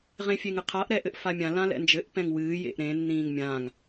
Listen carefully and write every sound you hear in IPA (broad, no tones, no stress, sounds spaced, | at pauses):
ʁ ẽ fʲ e ŋ ɨ qʰ a ʔ ɾ ɛ ʔ ɘ ʔ f a mʲ ã l ã l ɛ̰ n d͡ʒ ɘ ʔ p ɛ̃ ŋ w ɨː j ḛ ʔ ɾ ẽ nː ĩː ŋ mʲ ã ŋ